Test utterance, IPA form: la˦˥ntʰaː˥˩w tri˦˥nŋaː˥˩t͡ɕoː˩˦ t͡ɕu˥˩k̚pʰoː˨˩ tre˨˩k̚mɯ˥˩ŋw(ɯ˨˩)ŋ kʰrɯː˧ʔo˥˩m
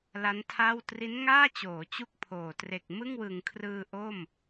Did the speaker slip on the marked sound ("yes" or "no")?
no